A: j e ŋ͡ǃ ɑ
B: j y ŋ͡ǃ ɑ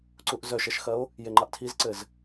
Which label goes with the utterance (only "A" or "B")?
A